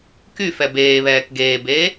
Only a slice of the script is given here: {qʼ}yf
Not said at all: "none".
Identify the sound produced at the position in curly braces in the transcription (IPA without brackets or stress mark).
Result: k